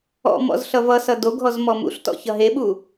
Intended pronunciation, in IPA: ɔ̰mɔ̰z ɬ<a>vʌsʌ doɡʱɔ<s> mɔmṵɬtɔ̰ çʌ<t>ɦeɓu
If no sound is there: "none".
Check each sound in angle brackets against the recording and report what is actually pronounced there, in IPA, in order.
ʌ, z, none

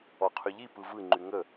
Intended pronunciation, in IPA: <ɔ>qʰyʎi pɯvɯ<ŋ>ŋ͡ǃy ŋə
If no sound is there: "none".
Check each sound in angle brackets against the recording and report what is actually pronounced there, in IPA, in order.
ɔ, none

